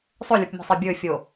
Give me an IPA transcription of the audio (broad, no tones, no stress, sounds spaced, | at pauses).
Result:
sˤ ɵ lʲ u p mʲ e̤ sˤ i bʲ ɵ fʲ o